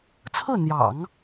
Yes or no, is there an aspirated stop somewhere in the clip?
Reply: yes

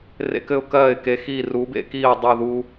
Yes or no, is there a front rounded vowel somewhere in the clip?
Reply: no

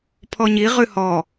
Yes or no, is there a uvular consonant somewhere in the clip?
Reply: yes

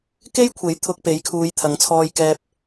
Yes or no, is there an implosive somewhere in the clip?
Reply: no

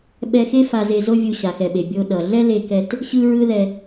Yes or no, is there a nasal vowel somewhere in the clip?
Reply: no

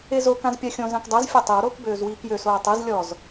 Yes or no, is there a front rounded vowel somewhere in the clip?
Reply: yes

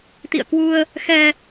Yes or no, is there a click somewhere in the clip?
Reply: no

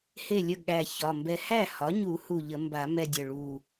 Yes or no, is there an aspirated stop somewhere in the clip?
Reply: no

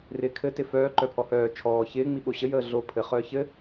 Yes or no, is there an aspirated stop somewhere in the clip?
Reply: yes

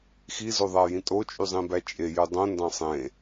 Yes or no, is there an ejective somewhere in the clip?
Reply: yes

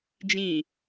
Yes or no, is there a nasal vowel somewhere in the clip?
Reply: yes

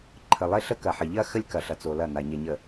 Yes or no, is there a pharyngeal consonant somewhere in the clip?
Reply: yes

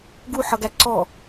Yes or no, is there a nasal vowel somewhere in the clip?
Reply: no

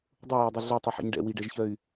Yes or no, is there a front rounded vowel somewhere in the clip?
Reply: yes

